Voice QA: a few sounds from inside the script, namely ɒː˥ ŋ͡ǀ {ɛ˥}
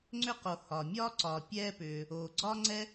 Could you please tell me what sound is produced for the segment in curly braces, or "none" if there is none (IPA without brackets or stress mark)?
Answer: ɛ˥